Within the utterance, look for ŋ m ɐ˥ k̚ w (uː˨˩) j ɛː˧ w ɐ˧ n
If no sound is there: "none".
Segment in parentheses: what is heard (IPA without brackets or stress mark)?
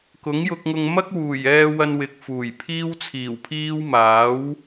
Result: uː˨˩